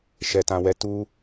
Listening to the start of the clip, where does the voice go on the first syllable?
low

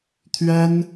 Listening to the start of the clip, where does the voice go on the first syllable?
high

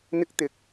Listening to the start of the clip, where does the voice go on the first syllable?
high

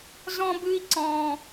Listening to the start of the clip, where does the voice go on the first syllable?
high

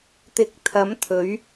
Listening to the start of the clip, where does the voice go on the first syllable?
rising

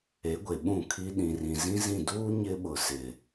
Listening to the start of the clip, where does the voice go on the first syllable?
rising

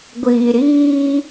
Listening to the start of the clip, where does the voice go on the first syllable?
low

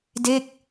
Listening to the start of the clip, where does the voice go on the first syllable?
falling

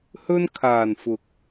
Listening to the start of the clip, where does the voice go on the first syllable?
high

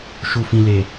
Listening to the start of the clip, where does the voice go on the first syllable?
low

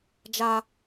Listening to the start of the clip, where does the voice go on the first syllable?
high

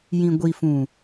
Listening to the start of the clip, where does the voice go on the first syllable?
low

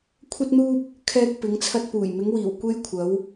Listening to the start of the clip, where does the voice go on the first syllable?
high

